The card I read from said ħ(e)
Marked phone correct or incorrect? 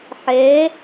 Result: incorrect